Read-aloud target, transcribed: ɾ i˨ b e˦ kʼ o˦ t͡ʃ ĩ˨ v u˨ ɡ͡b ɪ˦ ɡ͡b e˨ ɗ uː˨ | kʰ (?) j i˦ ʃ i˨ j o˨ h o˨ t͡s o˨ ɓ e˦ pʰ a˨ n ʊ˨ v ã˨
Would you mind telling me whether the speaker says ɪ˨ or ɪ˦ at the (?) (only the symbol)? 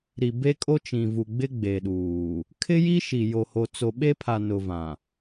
ɪ˦